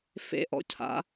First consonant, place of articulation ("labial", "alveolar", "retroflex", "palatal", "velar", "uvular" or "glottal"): labial